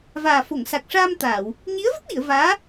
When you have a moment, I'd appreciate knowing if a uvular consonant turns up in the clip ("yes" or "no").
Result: no